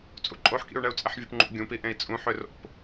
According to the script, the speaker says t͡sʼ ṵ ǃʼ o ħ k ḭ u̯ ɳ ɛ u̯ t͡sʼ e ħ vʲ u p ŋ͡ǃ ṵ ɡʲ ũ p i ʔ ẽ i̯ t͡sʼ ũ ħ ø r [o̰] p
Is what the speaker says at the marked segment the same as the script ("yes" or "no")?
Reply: yes